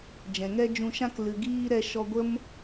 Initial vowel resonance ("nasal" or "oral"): nasal